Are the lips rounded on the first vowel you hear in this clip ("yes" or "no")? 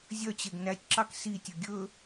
yes